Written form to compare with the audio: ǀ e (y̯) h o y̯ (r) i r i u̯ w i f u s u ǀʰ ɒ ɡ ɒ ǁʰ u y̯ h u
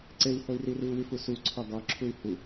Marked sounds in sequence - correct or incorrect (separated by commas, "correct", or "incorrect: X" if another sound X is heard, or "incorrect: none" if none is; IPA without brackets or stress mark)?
incorrect: i̯, correct